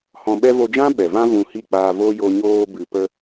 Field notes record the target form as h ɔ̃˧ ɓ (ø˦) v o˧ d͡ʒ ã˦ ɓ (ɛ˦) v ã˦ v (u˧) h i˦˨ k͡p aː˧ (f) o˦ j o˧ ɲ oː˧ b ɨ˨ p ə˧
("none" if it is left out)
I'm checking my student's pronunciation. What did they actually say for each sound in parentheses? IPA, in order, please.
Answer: ɛ˦, ɛ˨, ũ˧, v

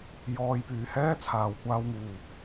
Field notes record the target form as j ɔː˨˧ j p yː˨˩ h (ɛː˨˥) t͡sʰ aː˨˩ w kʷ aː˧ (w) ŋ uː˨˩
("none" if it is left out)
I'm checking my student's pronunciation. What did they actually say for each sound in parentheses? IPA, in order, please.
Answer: ɛː˥, w

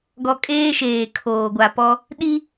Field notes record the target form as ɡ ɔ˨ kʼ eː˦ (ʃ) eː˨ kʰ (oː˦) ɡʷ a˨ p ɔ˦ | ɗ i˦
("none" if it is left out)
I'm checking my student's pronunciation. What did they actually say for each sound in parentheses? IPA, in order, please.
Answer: ʃ, oː˨

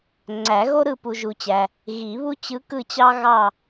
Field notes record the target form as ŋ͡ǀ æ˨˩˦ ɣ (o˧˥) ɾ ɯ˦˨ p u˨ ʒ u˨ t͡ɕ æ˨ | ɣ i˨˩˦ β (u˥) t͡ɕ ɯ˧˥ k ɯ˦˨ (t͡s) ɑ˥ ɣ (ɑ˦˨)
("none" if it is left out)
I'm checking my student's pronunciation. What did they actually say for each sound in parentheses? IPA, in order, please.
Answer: o˥, u˥, t͡ɕ, ɑ˦˨

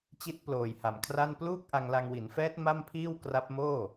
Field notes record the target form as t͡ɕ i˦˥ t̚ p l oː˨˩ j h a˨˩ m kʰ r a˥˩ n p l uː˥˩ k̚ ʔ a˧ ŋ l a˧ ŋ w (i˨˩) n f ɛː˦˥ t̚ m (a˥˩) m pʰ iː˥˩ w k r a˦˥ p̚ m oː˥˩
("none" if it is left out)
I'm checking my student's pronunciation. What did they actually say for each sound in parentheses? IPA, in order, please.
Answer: i˩˦, a˥˩

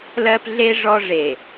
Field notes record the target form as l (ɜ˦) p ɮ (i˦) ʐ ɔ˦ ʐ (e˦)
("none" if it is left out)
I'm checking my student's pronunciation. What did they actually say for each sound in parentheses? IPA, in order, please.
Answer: ɜ˦, e˦, e˨

